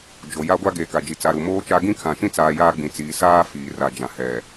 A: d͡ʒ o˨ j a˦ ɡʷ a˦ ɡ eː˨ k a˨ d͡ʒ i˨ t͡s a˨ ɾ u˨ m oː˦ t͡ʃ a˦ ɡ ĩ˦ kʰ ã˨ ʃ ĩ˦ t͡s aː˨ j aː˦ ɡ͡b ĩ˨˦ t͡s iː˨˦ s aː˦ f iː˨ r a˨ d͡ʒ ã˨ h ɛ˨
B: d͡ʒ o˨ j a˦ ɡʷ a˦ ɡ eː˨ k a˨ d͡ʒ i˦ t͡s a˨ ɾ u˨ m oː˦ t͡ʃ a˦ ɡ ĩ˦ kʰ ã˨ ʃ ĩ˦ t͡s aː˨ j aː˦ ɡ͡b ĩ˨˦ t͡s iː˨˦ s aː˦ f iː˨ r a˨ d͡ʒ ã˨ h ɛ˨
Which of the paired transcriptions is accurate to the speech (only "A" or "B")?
A